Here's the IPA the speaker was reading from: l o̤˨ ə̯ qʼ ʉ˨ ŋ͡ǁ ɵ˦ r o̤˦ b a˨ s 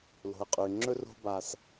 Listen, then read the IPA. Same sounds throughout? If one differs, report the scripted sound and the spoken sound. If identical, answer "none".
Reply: none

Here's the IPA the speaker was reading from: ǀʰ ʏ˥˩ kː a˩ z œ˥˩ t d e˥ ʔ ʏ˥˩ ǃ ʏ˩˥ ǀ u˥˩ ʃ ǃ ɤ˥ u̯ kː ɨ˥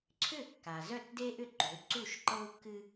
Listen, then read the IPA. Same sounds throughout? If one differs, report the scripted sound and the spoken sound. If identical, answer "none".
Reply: none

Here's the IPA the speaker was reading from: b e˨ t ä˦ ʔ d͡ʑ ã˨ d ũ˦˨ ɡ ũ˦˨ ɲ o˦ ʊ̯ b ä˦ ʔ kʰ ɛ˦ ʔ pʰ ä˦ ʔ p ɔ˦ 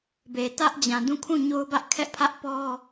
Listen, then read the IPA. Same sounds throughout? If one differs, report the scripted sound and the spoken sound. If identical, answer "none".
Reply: ɡ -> kʰ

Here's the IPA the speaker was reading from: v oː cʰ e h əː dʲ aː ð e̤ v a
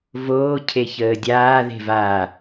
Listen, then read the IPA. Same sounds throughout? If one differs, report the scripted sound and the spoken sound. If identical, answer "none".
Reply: h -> ç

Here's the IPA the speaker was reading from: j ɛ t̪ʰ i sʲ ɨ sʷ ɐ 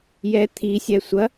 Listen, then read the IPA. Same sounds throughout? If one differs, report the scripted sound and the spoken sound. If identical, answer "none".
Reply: ɨ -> ɛ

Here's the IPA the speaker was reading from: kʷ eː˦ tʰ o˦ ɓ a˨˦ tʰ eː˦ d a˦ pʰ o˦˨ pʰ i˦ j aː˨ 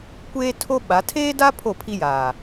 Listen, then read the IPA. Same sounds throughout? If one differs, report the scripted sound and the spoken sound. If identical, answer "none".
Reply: none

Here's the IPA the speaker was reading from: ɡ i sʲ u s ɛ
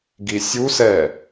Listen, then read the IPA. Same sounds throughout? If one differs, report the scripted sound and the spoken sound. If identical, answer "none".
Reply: none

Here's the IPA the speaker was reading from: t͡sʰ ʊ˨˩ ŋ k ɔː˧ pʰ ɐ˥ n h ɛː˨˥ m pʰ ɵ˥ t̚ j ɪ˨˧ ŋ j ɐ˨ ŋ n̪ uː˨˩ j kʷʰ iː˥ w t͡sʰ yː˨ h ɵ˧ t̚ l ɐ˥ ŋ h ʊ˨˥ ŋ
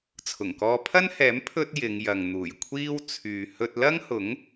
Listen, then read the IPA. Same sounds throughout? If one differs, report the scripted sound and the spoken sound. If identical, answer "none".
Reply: none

